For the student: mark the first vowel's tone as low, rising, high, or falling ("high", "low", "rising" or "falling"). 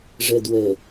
low